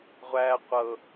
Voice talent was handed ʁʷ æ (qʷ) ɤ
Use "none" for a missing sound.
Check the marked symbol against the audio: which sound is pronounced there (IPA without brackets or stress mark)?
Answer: qʷ